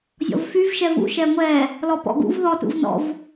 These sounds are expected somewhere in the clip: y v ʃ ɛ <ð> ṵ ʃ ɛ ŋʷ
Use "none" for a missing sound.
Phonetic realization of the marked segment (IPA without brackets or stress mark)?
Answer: v